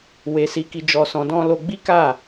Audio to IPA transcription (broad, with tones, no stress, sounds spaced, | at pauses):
w e˧ s i˧ k i˧ d͡ʒ ɔ˧ s ɔ̃˧ d ɔ̃˦ l o˦ ɡ͡b i˦ k a˦˨